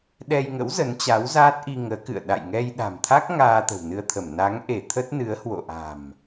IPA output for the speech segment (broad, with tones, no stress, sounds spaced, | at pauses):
ɗ ɛ˧ j ŋ ə̰˧˥ w z ə˨˦ n t͡ɕ a˨˦ w z aː˦˥ t̚ ʔ i˧ ŋ əː˨˦ k ɨ̰˧˨ ə̯ ɗ a̰˧˨ j ŋ ɛ˧ j ɗ a̤˨˩ m t̪ʰ a˦˥ k̚ ŋ aː˧ t̪ ə̤˨˩ w n ɨ˧ ə̯ t̪ʰ ə˧˩ m n a˨˦ ŋ ʔ e˧˩ t̪ʰ ə˦˥ t̚ n ɨ˨˦ ə̯ h w o̰˧˨ ʔ a̤˨˩ m